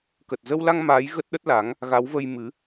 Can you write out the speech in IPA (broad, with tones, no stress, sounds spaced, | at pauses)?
k ə˨˩ t̚ z ə˧ w l a˧ ŋ m aː˨˦ j ɣ ə˦˥ t̚ ɗ ə˦˥ t̚ l a˨˦ ŋ | ɣ a˨˦ w v ə˧ j m ɨ˨˦